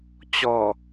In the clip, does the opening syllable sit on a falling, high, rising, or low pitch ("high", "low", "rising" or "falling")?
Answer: low